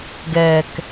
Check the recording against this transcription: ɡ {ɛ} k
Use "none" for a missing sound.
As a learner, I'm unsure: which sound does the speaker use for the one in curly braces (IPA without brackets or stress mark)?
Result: ɛ